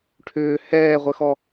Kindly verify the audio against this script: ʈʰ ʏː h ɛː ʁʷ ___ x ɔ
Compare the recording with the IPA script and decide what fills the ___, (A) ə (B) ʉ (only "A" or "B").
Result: A